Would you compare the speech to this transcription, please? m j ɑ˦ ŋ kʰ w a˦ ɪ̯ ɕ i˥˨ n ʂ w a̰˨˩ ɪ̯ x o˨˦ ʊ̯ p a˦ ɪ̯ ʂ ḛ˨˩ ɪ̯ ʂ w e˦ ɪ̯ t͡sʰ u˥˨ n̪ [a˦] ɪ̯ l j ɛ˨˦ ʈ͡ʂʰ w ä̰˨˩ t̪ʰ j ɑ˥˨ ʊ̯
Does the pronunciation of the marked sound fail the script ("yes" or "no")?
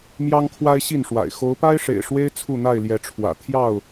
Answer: yes